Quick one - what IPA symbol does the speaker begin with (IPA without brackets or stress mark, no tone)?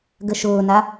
ɡ